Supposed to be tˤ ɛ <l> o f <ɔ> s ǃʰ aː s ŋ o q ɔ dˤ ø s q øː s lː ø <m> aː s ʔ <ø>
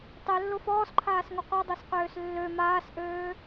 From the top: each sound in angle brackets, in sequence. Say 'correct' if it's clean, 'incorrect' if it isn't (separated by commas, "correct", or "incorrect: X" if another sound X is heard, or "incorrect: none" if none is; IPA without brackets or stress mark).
incorrect: lː, incorrect: ɔː, correct, incorrect: øː